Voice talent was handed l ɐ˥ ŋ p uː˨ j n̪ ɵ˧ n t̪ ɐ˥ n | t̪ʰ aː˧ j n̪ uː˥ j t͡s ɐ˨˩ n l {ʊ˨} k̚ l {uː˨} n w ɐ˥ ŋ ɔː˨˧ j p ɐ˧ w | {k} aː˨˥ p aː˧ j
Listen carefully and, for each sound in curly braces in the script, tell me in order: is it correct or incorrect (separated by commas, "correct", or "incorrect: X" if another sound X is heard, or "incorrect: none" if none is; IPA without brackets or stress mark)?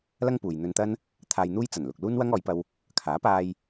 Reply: correct, incorrect: uː˥, incorrect: kʰ